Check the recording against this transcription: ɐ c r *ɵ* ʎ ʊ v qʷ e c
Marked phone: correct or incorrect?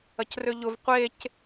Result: incorrect